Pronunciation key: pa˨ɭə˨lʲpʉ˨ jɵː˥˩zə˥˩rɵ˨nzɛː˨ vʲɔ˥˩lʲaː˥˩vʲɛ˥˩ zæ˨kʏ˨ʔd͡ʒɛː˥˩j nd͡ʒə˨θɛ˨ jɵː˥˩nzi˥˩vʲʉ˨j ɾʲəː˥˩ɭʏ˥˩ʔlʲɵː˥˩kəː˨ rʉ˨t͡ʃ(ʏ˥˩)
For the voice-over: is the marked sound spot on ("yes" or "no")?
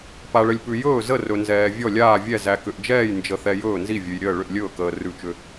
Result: no